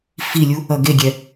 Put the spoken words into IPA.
filʲu | ʌɡeɡʲɛ

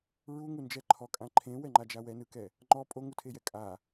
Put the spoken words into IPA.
ɹuŋund͡ʒɛ ǃʰɔkʼã ǃʰẽwɛŋ͡ǃad͡ʒa wɛnɯkɛ | ŋ͡ǃɔ pʼoŋutʰejɛ kʼa

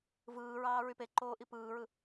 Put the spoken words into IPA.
vɯːɹɑː ɹypeǃoː ʔipɯːɹɯ

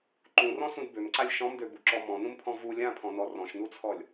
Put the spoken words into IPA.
ǃũrɔ̃sũd bømǀalʲ ʃɔ̃mdøbuǁɔ mɔ̃nũmpʰɔ̃ vu lʲãpʰɔ̃nɔ rɔ̃ʃnut͡sʰɔlʲ

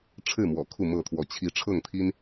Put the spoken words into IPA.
ʈ͡ʂʰɻ̩˥˨mwɔ̰˨˩ kʰu˥˨mɤ˥˨t̪ʰwɔ˨˦ t͡ɕʰi˨˦ ʈ͡ʂʰɤ˥˨ŋt̪ʰi˦n

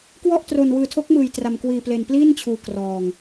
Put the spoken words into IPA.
kwɔ˥˩ʔ tro˧nwɯː˧tʰo˦˥k̚ mɯː˧jtra˧mkwiː˧ ple˧npliː˥˩nt͡ɕʰuː˧ krɔː˧ŋ

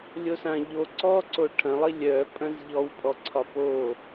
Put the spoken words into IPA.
lʲosãʎo ǀɔǀo ʈʰɐ̃lˠi lʲœpʼɐ̃z ʎɔwpʼɔǀʰɒ po

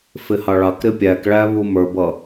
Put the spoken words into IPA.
fɪhɑɭɑk ɾɪpʲækɭæβu mə˞bʌ

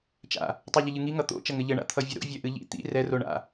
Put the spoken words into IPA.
t͡ʃa̰ | tˤɛʎəʎɨŋi ŋʌt̪o̰ t͡ʃʌŋɘʎɘɳa̰ t̪ʰʌvʲɘɾo̰ vʲœʔɨʎḭ t̪ḭ rɛro ɳa̰

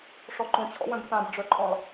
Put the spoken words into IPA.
ʂɔǃõt͡ɕʰɔ̰wœ̃b t̪ãbɖ͡ʐœǃʼɔ̃lˠ

